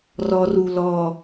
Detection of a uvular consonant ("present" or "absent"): absent